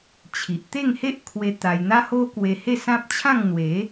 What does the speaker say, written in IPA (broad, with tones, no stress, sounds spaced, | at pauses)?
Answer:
t͡ɕʰ i˨ ʔ t̪ e˥˧ ŋ h e˦ ʔ kʰ w e˧ t̪ a˧ j n̪ a˦ h o˦ k w e˧ h e˥˧ s ã˦ p̚ t͡ɕʰ ã˥˧ ŋ n̪ w e˨˦